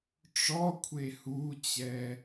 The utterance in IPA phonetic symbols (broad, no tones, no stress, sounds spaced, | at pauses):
ʈ͡ʂ ɔ kʷʰ e h u t͡ɕ ɛ